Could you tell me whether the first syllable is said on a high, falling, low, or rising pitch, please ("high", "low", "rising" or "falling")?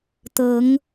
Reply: rising